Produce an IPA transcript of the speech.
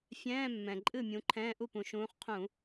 fʲ ɛ̃ː˧˥˧ mː ɛ̃˨˩ ǃʼ ɨ˥˩ mʲ ũ˨˦ ǃʰ ɛ̃ː˧˥˧ ʔ u˥˩ p ũ˨˩ ʃ ũː˨˦ χ qʰ ũ˧˩˧

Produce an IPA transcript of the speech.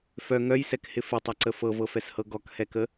f œ ŋ œ j s ɛ k h ɪ f ɪ tˤ ɐ ǀ ə f ɤ v ɤ f ɛ s h ɤ ɡ ɔ k h ɛ k ə

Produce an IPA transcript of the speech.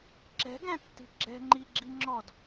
ǁ ɛ̤ ɡ æ̃ tː i̤ ɡ͡ǁ ɛ̤ ŋ͡ǃ i ɡ͡ǁ i ŋ͡ǁ ɔ d

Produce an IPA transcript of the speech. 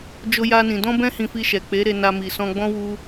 d͡ʒ o˦ j a˦ n ĩ˧ d ɔ̃˦ b ɛ̃˦ h ĩ˧ f i˧ ʃ ɛ˨ k͡p e˨˦ ɾ e˧ n a˧ m i˨ s ɔ̃˧ ɡ͡b ɔ̃˦ w u˦

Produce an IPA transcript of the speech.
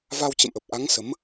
v a˧ w t͡ɕ ə̰˧˨ m ʔ ə˨˩ p̚ ʔ a˨˦ ŋ s ə˨˦ m

